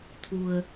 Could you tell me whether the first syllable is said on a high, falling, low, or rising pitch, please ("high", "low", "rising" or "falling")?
low